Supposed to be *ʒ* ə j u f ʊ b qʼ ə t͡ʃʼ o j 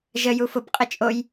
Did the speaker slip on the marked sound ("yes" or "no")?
no